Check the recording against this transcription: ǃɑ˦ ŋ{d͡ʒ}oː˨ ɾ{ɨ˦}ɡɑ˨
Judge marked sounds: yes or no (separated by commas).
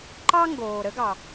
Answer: no, no